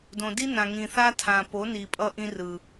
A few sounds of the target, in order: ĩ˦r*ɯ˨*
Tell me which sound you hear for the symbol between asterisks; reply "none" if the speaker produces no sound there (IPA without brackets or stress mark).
ɯ˨